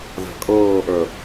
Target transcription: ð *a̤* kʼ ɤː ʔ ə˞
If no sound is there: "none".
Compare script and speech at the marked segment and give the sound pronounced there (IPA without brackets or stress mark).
a̤